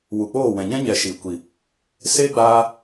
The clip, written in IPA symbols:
wu˨k͡poː˦˨ wɛ̃˨ɲɛ̃˦ ɲɛ˨ ʃi˨kʷi˨ | se˦ɡ͡baː˧

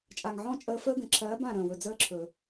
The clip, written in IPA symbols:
t͡ʃʼa˨ŋʕɔ̃˦˨ t͡ʃʼəː˧fəː˦ɡə̃˨ ǁʰɜː˨˦b ã˦˨ɾə̃ː˨wɵ˨ d͡zəː˦ǁʰɵ˨

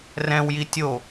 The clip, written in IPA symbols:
rɛ̃wji tʲo

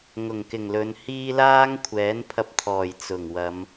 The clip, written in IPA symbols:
ŋʊ˨˩ŋkɪ˨˩ŋ lɵ˨˧nhiː˥ laː˥ŋkʷʰɛː˨˥npʰɐ˧p̚t̪ʰɔː˨˩j t͡sʊ˨˩ŋ wɐ˨˧m

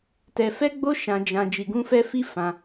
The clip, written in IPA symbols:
tɛ˧fɛ˦ɡ͡bo˦ ʃã˦d͡ʒã˦ d͡ʒi˧ɡũ˦fɛ˦ fi˦fã˧

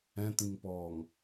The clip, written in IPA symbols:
ɛ̃t̪ĩŋpɔːŋ

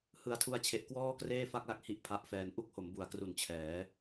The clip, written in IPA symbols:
hɯ˨˩a̯tʰu˧a̯t͡ɕʰe˨˩ʔ kwɔː˥˩kreː˥˩fa˥˩k̚la˦˥k̚ hi˥˩ʔpʰa˦˥ʔfɛː˧n ʔu˥˩k̚ho˩˦mbu˩˦a̯kru˨˩n t͡ɕʰɛː˩˦

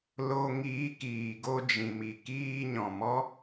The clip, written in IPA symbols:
lo˧ ŋiː˨˦kiː˨ ɡo˧d͡ʒĩ˨mi˨ kiː˧ ɲɔ̃˨mɔ˦

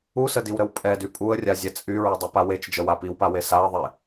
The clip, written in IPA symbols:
usədiwɾəw pʼɛdy pʼuə̯rʲazʲɛ t͡sʼyɹydˤipa wet͡ʃd͡ʒəwa piwpawe saə̯ðˤe

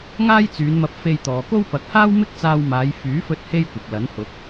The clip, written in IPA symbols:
ŋaː˥jt͡syː˨˧nmɐ˧p̚ fe˧jt̪ɔː˨ko˥wpɐ˨˥k̚ haː˥wmɪ˥k̚t͡saː˧wmaː˨˧j fyː˨˥fɵ˧t̚ he˥jkʷɪ˨k̚lɐ˨˥nhʊ˨˥k̚

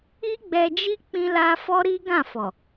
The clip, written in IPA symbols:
i˦ɡ͡bɛ˧d͡ʒi˦ k͡pĩ˧la˧ fɔ˦ɾi˦ ɡã˦˨fɔ˨

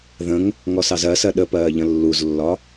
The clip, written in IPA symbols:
ðə̃ŋ | ŋɔsɑzɜsɜ ɗəpɜː ʎə̃lːuzlːɒ

